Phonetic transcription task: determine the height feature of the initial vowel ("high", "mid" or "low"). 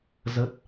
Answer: mid